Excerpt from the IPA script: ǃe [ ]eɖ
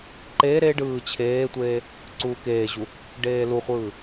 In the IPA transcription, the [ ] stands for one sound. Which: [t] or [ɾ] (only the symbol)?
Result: ɾ